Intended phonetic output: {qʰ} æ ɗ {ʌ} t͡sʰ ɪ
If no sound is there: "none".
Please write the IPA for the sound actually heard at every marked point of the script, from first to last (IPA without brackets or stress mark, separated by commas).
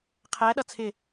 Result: qʰ, ʌ